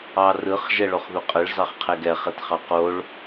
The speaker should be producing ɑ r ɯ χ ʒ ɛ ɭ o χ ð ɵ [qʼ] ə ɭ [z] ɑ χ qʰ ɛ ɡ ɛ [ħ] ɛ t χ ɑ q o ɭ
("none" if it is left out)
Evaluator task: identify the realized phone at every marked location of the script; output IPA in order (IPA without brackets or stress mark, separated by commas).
qʼ, z, χ